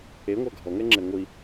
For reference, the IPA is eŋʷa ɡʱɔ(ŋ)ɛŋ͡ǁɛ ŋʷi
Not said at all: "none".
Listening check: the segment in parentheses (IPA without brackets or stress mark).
ŋ